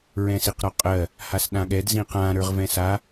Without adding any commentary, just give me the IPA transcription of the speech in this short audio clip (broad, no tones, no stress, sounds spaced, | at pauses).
ɹ ɛ̃ s i q ɾ ɒ qʼ ɜ | h a s ɗ ã ɠ ɛ d z ĩ q ã ɾ ə˞ ʁ v ɛ̃ s a